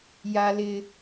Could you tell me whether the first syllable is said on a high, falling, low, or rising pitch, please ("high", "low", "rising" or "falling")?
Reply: high